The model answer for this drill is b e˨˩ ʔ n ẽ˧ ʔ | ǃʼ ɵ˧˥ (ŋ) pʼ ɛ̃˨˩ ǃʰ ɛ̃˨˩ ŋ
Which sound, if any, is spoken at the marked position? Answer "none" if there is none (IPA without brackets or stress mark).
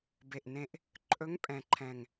ŋ